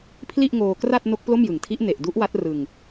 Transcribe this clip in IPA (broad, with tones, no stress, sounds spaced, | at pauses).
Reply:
pʰ l i˥˩ ʔ ŋ oː˧ k r a˥˩ t̚ n o˦˥ k̚ p l o˥˩ m j ɯ˨˩ ŋ tʰ i˦˥ ʔ n e˨˩ ʔ d u˦˥ ʔ w a˦˥ t̚ r ɯ˧ ŋ